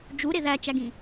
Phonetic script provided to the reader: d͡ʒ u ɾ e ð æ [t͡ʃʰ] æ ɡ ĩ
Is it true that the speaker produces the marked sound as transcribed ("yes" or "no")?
no